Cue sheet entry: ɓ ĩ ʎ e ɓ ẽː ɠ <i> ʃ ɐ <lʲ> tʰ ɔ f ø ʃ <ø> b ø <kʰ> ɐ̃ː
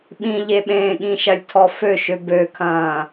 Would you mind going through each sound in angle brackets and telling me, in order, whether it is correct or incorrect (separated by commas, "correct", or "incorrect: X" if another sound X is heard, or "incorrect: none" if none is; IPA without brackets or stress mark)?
incorrect: ĩ, correct, correct, correct